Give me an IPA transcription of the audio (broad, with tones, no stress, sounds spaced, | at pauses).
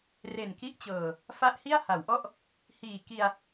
r e˨˩ n k i˦˥ ʔ t͡ɕ ɤː˨˩ | f a˦˥ ʔ h i˥˩ a̯ h a˩˦ w ʔ ɔ˥˩ ʔ | h iː˨˩ k i˧ a̯